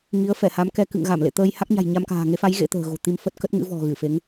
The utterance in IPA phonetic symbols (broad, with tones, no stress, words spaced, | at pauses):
ŋi˨˦ə̯fɛ˧˩ha˨˦mkɛ˧ kɨ̰˧˨ŋɣa˧˩mlḛ˧˨t̪əː˧j ha˦˥k̚ɲa̤˨˩jɲa˧mka̤ː˨˩ ŋe˨˦fa˨˦j ɣḛ˧˥t̪ə̤ː˨˩ɣo̤˨˩ t̪i˧m fə˦˥t̚kə˦˥t̚ŋɨ̰˧˥vɔ̤˨˩ ɣɨ˧˩fe˨˦ŋ